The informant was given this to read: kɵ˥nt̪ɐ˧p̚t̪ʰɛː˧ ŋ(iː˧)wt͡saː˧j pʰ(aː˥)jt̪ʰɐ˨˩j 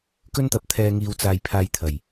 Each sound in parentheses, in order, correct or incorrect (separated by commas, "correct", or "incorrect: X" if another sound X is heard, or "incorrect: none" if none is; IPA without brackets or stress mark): correct, incorrect: aː˧